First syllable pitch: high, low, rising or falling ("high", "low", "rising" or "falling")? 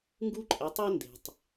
high